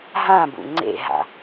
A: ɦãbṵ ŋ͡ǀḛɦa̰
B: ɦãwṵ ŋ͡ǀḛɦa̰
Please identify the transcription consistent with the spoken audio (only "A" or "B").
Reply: A